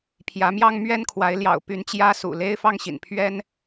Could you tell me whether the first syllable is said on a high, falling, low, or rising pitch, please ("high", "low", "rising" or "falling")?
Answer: rising